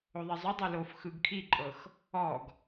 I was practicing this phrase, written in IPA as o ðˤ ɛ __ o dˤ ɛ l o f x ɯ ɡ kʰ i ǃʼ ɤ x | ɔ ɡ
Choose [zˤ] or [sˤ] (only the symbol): zˤ